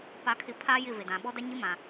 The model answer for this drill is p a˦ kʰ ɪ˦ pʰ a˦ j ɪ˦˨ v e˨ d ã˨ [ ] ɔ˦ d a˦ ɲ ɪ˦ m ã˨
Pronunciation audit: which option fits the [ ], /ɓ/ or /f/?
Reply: ɓ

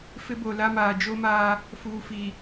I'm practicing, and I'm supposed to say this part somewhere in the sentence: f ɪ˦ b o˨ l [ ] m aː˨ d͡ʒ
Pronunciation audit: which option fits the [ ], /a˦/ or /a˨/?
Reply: a˦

